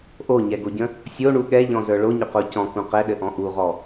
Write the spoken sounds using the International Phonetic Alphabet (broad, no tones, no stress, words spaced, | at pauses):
ʔoɲɛɡoɟə̃ | sʲoɳu ɠɛʎɔ̃zə˞ ɭoɲʏqo cɔ̃kũ qɛɗɘʔɔ̃ ʔuʁɔ